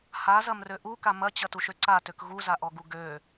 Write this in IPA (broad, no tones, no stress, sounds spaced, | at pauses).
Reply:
h a z ɐ m r ø ʔ u k a m ɐ t͡ɕ ɐ t u ʃ ø ǀ a t ø k ɣ u z a ʔ ɔ ɡ u ɡ ø